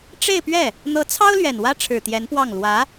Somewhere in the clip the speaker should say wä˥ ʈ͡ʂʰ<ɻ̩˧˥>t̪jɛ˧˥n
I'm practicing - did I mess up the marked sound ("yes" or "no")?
yes